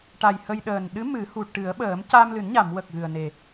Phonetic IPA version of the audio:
ʈ a˨˩ j h ə˧ j ɗ əː˨˩ n ɗ ɨ˧˥ m ɨ˨˩˦ h u˨˩ ʈ ɨ˨˩˦ ə̯ ɓ əː˨˩˦ m c a˧ m l ɨ˨˩˦ n ɲ a˨˩˨ m w ə˨˩ k̚ ɣ ɨ˨˩ ə̯ n e˨˩

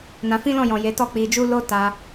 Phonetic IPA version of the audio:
n ã˧ f ĩ˦ l ɔ̃˦˨ j ɔ̃˨ j e˨˦ t ɔ˦˨ k͡p i˧ d͡ʒ u˦ l o˦ t a˧

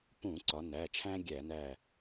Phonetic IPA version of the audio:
p ũ˧˩˧ ǀ ɒ˩˧ n æ˩˧˩ t͡ʃʰ æ̃˦ ɡʲ æ˧˩˧ n æ˧˩

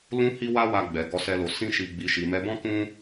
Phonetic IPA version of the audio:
l ũ˦ h i˦ w a˦ w a˧ ɡ͡b ɛ˨ ɡ ɔ˧ s ɛ˧ l o˨ s ĩ˧ ʃ i˨ ɡ͡b i˨ ʃ i˨ m ɛ˧ b ɔ̃˦ k ũ˦

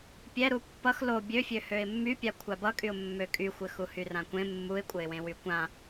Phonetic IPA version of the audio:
pʲ ɛ ɾ u pː ʌ x l o bʲ ø fʲ ø h ø ɪ̯ mː y pʲ a kʷʰ a b ʌ kʼ y ʊ̯ mː ø kʼ y xʷ ɘ x u h y r ã kʷ ẽ mː u ɪ̯ kʷʼ ɘ ɪ̯ w ẽ w y kʷ ã

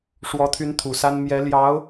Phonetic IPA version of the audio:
ʂ w ɔ˧˥ t̪ʰ y˧˥ n t̪ʰ u˨˩ s a˥ n m j ɛ˧˥ l j ɑ˧˥ ʊ̯

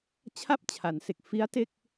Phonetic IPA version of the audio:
t͡ɕʰ a˥˩ p̚ t͡ɕʰ a˩˦ n s e˨˩ k̚ f i˦˥ a̯ t e˥˩ k̚

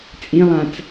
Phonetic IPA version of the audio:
t͡sʼ ĩ lˠ ã t͡s

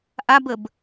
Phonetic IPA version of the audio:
ʔ a b ə b

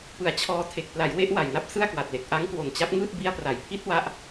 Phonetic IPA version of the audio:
p ɯ˩˦ a̯ t͡ɕʰ ɔː˧ tʰ e˨˩ k̚ p l a˩˦ j w e˦˥ ʔ w a˨˩ j n a˥˩ p̚ s ɯ˥˩ a̯ k w a˨˩ t̚ l e˨˩ k̚ ʔ a˦˥ ŋ k w o˨˩ n t͡ɕ a˦˥ p̚ ŋ ɯː˥˩ t̚ b i˧ a̯ p r a˩˦ j pʰ i˦˥ t̚ w a˦˥ ʔ

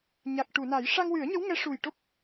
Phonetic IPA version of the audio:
ɲ a˨˩ k̚ ʈ u˨˩˨ n a˨˩˦ j ʂ a˧ ŋ w ɨ˨˩˦ ə̯ ɲ ə˧˥ w ŋ ɛ˧˥ ʂ u˨˩ j ʈ o˦˥ p̚

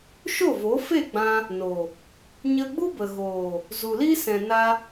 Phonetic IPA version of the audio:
ʃ o˦˨ v o˨˦ f e˦˨ ɡ͡b ã˧ | n o˨ | ɲ ə˧ ɡ͡b u˦ b ə˨ ɣ oː˨ | z u˨ l i˦ s ɛ̃˨ n a˧

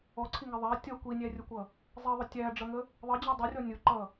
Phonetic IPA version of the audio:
ɔ ǀʰ i ŋ ɛ ðˤ æ tʲ ʌ kʷ i nʲ æ rʲ ʊ kʷ ʌ | zˤ i ðˤ ʊ tʲ æ ɖ͡ʐ ʌ ŋ ə | ðˤ ə d͡ʑ ə dˤ ʊ rʲ ɔ nʲ ʊ ǃ ʌ

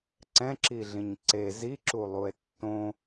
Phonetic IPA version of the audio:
ǀ ɛ̃ ǁ i ɮ ĩ ɲ ǀ e z i ǁ u lˠ u e̯ tː õ

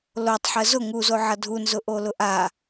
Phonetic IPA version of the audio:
l o tˤ ħ ə z ʊ ŋ u z o ʕ ʌ dʱ u n z ʊ ʔ o l ʊ ʔ a

